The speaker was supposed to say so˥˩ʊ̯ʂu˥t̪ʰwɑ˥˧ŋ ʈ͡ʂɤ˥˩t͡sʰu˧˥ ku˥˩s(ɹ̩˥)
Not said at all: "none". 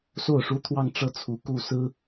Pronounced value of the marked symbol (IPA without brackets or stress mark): ɹ̩˥